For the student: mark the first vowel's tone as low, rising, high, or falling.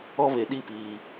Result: high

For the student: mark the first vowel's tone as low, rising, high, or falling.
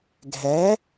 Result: rising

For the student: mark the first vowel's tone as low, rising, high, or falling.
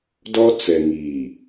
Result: high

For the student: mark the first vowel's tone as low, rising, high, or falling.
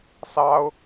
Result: high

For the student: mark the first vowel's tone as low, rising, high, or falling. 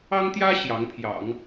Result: high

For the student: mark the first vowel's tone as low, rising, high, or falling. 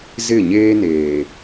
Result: falling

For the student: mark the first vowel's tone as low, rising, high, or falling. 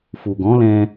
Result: low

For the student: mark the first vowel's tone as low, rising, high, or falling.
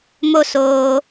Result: high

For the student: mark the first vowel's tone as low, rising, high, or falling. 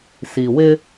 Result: low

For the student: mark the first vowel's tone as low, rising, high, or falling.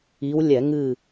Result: rising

